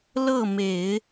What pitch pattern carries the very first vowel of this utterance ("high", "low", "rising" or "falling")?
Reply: falling